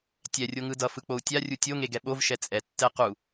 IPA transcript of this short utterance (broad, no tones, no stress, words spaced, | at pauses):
tʲɛ rʲoŋɯdʌfɯ k͡pou̯tʲarʲu tʲoŋe ɡɛɓovʃɛ t͡sʼɛtːɛ qu